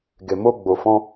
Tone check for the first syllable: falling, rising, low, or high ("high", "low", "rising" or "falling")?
low